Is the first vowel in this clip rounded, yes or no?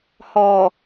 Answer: yes